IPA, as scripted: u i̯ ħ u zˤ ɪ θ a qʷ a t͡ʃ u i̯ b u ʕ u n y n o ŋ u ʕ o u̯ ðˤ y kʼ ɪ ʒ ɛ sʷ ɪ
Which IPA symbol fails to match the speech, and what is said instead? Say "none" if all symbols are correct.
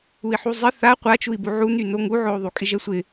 none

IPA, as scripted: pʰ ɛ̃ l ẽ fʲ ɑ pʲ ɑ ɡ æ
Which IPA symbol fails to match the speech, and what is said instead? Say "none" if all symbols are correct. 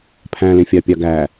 ɛ̃ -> æ̃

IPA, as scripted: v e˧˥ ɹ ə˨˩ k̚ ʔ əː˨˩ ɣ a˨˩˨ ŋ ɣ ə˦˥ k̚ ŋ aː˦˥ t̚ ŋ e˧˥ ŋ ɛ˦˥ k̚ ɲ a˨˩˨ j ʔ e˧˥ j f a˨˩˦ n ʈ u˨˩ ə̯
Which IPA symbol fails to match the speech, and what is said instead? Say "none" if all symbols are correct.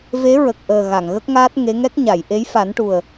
none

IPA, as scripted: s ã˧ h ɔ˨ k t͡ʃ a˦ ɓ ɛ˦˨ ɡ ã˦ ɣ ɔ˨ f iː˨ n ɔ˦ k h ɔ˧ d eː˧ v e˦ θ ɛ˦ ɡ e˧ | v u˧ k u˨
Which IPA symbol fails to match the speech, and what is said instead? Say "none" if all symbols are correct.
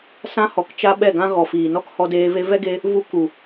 θ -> v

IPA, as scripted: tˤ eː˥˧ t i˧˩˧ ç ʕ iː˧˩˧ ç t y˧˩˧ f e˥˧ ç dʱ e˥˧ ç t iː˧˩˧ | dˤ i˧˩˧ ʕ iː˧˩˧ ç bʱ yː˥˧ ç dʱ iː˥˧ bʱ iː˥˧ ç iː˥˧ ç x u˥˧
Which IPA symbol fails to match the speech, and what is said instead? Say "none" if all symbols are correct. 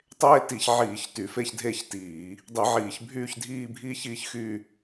u˥˧ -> y˥˧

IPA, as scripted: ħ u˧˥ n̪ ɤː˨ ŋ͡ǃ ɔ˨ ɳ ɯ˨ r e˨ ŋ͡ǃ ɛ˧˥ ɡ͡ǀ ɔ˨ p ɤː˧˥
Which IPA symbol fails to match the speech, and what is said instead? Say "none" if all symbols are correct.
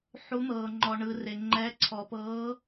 ɡ͡ǀ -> ǀʰ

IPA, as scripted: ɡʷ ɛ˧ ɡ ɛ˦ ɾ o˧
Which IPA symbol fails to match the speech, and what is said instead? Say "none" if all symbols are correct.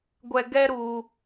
o˧ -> u˧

